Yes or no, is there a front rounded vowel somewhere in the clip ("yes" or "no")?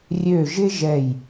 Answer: yes